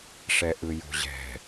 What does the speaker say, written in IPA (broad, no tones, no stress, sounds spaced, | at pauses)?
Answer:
ʂ ɛ ʔ ɯ j o̤ ʑ ɛ̤